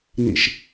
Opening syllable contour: low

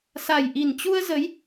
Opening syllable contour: low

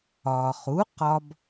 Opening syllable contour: low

